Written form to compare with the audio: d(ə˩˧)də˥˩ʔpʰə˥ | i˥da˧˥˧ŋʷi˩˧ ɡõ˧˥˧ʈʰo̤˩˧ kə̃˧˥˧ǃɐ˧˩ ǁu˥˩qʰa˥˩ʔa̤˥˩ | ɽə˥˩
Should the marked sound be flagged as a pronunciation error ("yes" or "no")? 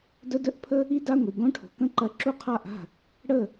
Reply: yes